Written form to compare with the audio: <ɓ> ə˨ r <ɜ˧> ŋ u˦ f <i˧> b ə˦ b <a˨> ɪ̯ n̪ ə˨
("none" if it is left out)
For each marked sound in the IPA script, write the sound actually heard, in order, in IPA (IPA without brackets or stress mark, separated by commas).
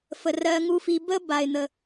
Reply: f, ɜ˧, i˧, a˨